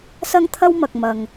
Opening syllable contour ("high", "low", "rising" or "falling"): high